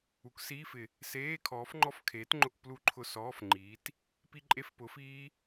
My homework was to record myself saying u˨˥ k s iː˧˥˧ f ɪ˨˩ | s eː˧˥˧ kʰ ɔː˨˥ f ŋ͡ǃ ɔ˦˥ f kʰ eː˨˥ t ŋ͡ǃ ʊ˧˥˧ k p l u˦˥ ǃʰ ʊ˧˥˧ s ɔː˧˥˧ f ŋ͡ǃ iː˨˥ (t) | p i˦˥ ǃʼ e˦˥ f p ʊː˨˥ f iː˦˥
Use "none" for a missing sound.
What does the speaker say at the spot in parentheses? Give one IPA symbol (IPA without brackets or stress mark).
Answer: t